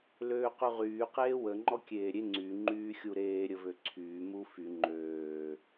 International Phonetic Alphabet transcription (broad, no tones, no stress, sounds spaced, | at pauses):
l øː q y ʁ yː q eː w ə ŋ͡ǃ ɔ kʲ eː ɾʲ e ŋ͡ǀ y ŋ͡ǃ yː xʲ u ɾ eː ɾʲ ə v ø ǀʰ yː m u f y ŋ͡ǃ øː